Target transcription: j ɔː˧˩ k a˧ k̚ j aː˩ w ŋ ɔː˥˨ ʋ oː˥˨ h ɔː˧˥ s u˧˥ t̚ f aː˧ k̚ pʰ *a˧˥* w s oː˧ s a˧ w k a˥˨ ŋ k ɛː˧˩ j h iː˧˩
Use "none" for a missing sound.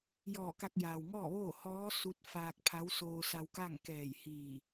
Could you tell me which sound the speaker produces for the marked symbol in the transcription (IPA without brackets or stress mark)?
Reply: a˧˥